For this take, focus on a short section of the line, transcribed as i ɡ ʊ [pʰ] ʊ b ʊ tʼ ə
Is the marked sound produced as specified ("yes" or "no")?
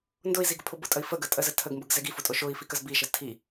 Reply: yes